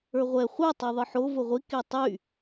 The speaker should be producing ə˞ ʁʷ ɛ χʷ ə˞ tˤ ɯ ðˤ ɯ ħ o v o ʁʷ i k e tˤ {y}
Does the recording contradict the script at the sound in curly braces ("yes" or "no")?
no